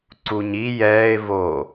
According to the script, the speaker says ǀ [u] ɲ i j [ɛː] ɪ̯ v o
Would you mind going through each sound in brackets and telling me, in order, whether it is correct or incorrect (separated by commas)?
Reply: correct, correct